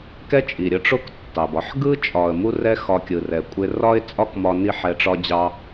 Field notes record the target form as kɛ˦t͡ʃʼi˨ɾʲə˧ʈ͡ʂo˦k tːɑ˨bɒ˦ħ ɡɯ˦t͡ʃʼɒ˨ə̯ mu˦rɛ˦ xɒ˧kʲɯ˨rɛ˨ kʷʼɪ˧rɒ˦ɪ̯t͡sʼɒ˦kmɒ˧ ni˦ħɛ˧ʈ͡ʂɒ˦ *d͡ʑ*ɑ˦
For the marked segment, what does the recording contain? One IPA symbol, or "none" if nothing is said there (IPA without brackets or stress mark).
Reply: d͡ʑ